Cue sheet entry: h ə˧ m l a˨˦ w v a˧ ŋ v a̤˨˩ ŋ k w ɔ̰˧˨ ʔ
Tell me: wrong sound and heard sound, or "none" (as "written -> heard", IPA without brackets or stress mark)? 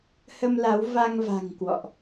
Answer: none